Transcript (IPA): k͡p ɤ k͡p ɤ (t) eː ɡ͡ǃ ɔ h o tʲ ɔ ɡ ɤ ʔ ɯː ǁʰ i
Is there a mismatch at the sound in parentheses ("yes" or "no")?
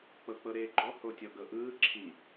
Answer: yes